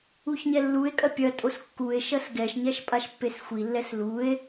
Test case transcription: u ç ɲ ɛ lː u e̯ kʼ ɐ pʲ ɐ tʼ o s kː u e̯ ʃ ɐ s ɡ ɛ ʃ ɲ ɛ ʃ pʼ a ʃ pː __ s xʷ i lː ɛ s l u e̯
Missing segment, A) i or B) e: B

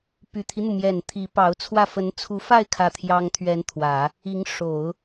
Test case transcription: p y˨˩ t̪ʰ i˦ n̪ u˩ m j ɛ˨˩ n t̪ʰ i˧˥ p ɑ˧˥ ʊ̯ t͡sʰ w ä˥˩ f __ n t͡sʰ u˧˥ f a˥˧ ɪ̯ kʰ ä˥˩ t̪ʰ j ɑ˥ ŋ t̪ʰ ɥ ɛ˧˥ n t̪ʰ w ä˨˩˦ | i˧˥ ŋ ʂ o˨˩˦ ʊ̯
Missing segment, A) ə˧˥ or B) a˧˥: A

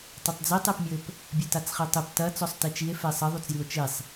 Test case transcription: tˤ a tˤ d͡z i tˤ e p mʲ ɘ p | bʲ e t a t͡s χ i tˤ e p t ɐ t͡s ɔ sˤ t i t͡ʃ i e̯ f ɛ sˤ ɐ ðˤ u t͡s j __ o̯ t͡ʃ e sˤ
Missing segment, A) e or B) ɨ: B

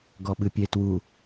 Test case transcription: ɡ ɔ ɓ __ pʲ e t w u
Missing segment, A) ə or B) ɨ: B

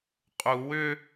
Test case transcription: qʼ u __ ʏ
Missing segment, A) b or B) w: B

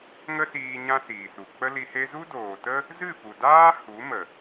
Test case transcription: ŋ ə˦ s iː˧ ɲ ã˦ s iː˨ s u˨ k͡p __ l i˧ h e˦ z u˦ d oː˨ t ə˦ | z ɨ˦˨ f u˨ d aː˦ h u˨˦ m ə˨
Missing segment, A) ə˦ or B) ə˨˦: A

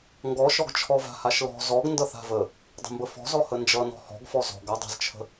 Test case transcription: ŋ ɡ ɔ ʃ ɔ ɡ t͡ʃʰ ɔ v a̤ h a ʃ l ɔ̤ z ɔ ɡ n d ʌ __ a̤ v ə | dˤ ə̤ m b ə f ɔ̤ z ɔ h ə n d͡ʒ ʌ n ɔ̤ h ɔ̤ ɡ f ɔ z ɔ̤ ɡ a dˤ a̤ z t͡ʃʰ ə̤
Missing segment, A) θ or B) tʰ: A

